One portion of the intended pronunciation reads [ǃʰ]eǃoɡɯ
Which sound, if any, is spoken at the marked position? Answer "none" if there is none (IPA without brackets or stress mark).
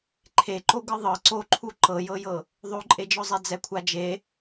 ǃʰ